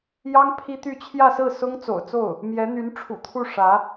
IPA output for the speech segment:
jɑ˥ŋ pʰi˥t̪y˥˧ t͡ɕʰjä˥˧sɹ̩˥˩ sʊ˥ŋt͡so̰˨˩ʊ̯t͡so˥˩ʊ̯ | mjɛ˧˥n̪y˧˥nʈ͡ʂʰṵ˨˩t̪ʰu˥˩ ʂä˧˥

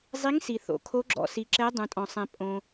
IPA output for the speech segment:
zˤi˨˦ŋsi˩ θo̰˩ kʰo˨˦ɡ͡ǁɔ̰˩si˩ǁɛ˨˦ dˤũ˩tʼɔ̃˩sˤɛ̃˩ pʼõ˩

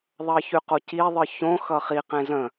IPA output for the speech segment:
ðˤʌçyqoci ðˤɯçõ xʌχi qẽzə̃

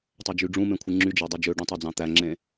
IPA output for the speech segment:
tˤød͡ʒyɖ͡ʐũmẽ kʷʰɯŋ͡ǁyd͡ʒɑ dˤyd͡ʒøɖũ tˤod͡zɑ̃t̪æŋ͡ǁẽ

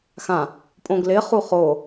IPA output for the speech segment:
xã | pʼõɡlɪχu χo

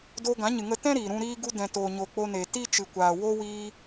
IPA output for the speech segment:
doː˧ɡã˨˦ɲɨ˨ŋə˧ tɛ̃˦ ɾiː˨ɾũ˧ ɾiː˧ɡu˧ dɛ̃˨toː˨ɲo˨ k͡po˧ne˨ ti˦t͡ʃɨ˨kʷaː˨ wo˧ wiː˧

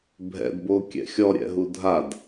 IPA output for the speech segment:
bʱɛ̰dbokʲɛ̰ xʲɔɾʲɛ̰ɦu dʱad

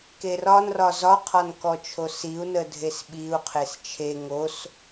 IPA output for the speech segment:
kerɒnrɒ zɒqʰɒnkɔt͡ʃʰo siu̯nədʱes ɓiu̯ qʰest͡ʃʰe ŋos

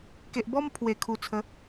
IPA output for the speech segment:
ke˨ʔbɔ˦m pʰwe˨˩kʰu˨˩t͡sʰə˨˦

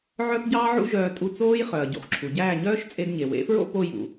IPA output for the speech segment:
ʕœ˥pɟɑː˥ʕṵ˥ʒœː˧ tʼu˥˩t͡soː˥j χœ˩ɐ̯ ɟṵ˩χǁʰu˩ ɟæː˥˩ɲœː˥ʃ t͡sʼe˧dɲe˩wḛ˩˥fɹo̰˥ po˧jṵ˩

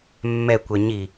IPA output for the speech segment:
mːɛkʷɛ ɲi

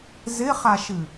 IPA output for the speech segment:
zɪχaʃɨ

